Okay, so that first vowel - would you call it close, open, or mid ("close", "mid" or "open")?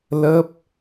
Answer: mid